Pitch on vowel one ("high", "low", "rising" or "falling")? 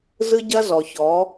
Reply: high